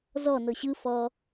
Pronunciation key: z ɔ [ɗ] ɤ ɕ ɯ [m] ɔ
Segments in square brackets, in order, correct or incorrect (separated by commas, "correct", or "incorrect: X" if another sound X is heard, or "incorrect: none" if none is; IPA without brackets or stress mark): incorrect: n, incorrect: f